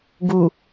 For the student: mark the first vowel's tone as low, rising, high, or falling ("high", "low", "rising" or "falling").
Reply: low